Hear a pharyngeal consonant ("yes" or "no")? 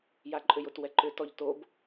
no